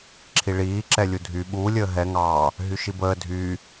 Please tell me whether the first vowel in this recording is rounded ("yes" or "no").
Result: no